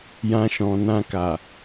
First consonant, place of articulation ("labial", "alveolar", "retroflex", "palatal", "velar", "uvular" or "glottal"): palatal